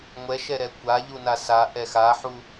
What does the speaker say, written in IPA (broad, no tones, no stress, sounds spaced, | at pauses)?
ŋʷ ɛ ʃ ɛ ɾ ɛ kʷ a ʎ u n a s a ʔ ɛ x a ħ u